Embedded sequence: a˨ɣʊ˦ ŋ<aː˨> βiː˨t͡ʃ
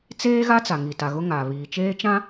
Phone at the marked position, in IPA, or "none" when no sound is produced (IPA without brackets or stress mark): aː˨